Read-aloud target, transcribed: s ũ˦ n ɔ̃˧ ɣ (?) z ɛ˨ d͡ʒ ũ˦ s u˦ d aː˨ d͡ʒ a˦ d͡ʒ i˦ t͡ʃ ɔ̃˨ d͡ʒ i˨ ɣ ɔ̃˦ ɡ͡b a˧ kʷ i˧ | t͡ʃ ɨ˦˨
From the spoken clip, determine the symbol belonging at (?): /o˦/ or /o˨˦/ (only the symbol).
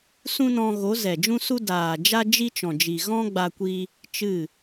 o˨˦